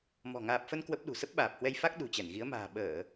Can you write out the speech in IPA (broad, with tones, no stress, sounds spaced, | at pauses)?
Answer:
m ɔ̤˨˩ ŋ aː˨˩ p̚ f ə˧ n k w ə˦˥ p̚ ɗ ṳ˨˩ s ə˦˥ p̚ ɓ aː˨˩ p̚ h w ɛ˧ j f a˦˥ k̚ ɗ ṳ˨˩ t͡ɕ ɛ˧˩ n ɣ i˨˦ ə̯ m a̤ː˨˩ ɓ əː˧˩˨